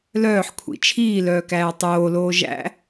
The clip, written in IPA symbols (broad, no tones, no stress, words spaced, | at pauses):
lœːħkʷʰḭ t͡ʃʰiːlœːkæː tˤoːloː ʒæ̰